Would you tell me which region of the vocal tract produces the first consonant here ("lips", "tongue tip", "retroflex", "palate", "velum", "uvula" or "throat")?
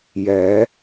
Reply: palate